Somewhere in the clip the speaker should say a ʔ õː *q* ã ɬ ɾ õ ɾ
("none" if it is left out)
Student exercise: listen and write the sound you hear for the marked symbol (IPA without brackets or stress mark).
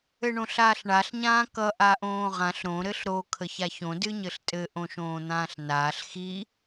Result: ʁ